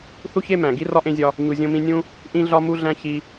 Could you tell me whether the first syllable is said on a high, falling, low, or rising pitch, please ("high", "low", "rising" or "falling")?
high